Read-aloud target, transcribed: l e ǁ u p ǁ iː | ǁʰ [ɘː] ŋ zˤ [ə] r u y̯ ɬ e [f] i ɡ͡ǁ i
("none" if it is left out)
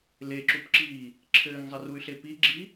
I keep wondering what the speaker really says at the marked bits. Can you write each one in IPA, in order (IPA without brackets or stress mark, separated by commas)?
ɘː, ɨ, p